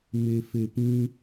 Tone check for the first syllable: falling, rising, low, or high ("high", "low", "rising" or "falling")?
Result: low